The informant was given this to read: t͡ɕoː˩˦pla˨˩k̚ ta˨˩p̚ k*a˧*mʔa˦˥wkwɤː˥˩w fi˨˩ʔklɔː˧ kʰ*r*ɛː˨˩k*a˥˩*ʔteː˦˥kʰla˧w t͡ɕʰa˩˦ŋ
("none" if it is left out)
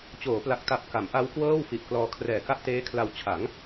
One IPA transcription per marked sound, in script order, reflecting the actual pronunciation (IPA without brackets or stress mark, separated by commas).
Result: a˩˦, r, a˥˩